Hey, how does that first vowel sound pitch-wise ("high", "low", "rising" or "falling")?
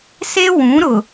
high